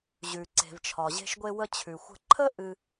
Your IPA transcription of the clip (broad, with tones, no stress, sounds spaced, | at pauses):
ʑ ʉ˩ ǀ e̤˩ v t͡ʃʰ ɒ˩ ʑ e̤˧ ʃ ɡʷ e˧ w ə˧ t͡ɕʰ ʉ˩ xʷ ə̤˧ ǃʰ ə˥ ʔ ɨ˧